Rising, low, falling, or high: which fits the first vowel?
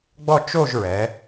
falling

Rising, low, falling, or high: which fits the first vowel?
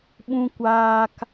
high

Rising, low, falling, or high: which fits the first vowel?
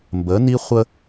rising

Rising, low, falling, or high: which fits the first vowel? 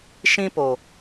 high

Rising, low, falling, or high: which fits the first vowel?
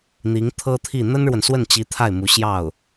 rising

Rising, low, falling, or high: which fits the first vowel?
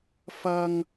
high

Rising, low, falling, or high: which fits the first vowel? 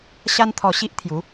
high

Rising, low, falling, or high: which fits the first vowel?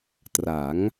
rising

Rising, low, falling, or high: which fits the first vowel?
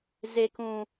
low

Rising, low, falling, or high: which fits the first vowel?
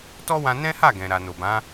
high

